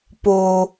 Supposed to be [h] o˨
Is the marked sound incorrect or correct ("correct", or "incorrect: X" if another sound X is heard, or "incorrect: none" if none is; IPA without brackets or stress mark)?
incorrect: p